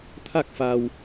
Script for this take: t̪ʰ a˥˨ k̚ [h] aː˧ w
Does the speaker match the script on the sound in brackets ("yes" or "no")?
no